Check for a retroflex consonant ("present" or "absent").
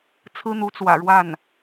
present